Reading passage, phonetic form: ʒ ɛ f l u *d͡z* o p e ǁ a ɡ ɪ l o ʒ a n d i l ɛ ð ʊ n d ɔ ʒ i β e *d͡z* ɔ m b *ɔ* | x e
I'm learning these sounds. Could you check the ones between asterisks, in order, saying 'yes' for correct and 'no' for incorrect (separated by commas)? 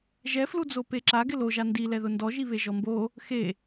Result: yes, no, no